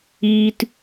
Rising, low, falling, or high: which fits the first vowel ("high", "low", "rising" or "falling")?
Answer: high